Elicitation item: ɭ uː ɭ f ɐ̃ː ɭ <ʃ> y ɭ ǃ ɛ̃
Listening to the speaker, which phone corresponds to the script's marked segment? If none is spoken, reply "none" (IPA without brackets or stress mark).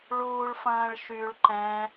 ʃ